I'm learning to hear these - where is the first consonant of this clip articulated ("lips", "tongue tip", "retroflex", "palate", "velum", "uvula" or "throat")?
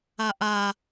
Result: throat